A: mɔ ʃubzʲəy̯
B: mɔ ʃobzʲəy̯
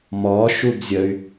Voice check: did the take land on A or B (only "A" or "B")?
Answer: A